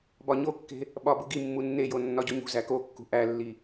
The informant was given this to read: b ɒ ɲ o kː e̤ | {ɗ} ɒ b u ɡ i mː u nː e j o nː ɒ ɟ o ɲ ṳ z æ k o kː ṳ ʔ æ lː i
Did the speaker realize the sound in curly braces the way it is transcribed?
no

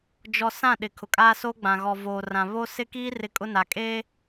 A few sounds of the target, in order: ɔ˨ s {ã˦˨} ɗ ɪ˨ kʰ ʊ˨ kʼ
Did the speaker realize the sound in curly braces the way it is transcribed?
yes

